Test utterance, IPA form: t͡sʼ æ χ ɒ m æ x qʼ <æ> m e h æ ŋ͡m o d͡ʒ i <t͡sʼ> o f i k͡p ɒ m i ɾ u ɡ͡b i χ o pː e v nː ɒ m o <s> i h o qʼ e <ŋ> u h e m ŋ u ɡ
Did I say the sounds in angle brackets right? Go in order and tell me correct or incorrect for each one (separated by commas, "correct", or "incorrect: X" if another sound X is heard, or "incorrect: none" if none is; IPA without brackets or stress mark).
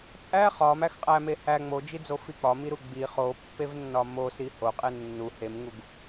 correct, incorrect: d͡z, correct, incorrect: nː